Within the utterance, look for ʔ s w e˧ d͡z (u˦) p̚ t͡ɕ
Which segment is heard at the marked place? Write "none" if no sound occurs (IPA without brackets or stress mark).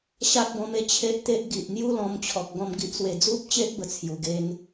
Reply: u˦